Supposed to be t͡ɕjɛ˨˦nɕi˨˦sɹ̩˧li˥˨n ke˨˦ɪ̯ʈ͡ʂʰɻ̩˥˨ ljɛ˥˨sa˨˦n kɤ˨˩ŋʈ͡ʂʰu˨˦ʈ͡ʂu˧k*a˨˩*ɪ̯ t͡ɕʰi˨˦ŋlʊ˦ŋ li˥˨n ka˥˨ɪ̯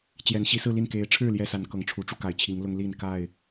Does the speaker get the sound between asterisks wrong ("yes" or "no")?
no